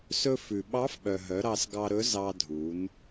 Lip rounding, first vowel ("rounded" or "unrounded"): rounded